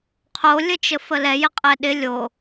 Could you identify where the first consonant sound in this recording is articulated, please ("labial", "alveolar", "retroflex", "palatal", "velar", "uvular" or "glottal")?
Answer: uvular